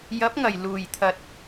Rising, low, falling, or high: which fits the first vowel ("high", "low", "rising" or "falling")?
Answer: rising